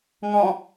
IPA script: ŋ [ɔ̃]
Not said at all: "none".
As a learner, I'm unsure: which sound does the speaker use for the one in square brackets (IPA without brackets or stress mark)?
ɔ̃